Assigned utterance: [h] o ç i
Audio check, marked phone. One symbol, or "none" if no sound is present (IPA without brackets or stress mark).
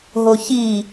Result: ɦ